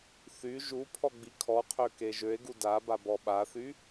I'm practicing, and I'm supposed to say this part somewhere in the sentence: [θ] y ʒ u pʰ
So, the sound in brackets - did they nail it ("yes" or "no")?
yes